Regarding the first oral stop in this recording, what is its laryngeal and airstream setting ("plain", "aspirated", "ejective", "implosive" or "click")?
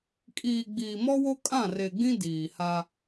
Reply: ejective